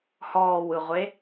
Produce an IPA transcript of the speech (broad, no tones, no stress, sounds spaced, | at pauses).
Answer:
h ɔː w ɯ ʁʷ e